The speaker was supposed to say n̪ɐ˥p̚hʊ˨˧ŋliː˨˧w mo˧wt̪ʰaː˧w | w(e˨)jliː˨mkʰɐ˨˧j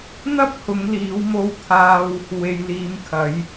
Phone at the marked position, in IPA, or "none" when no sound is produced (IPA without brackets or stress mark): e˨